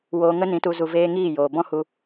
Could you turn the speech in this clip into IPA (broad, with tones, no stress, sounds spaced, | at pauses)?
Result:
w oː˧ ŋ ə˦ n ĩ˨˦ t u˧ z u˧ v eː˦ ŋ iː˦˨ j oː˨ b ɔ̃˦ h u˧